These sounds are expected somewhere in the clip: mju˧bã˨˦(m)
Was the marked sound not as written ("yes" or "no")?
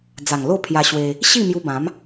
no